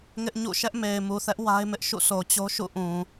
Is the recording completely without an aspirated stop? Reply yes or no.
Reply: yes